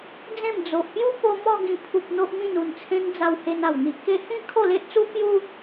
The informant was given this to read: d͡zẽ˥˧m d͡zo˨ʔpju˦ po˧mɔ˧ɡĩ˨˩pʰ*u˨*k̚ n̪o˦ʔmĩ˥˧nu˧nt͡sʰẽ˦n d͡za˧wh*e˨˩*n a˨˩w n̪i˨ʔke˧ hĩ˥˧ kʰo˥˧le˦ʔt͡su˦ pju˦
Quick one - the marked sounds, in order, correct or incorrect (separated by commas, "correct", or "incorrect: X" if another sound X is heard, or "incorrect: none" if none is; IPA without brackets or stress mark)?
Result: correct, incorrect: e˧